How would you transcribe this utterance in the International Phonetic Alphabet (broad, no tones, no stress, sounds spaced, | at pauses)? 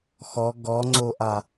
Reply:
x ɔ ɡ ɔ ŋ͡ǀ o ʔ a